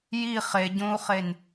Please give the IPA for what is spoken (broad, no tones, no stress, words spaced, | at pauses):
ji χeɟõːu̯χen